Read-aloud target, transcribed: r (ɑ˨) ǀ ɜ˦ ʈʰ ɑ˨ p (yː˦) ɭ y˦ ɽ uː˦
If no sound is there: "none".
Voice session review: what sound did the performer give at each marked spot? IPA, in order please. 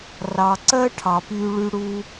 ɑ˨, yː˦

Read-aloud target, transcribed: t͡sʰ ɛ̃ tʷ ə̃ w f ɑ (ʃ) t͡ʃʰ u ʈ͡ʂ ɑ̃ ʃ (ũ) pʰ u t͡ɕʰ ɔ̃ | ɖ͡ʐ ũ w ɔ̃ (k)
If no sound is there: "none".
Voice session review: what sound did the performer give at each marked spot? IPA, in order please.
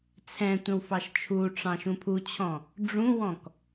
ʃ, ũ, k

